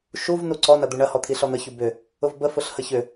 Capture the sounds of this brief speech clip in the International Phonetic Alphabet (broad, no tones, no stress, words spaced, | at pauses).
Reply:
ʃuv nuǀɔnɐ d̪uɳɐhɔt̪ʰi ɬɔn̪əçu bʏ | ʊvbə fʊɬhəçʏ